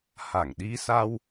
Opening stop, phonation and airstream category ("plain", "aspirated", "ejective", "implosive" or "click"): implosive